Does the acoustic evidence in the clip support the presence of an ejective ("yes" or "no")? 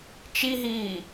no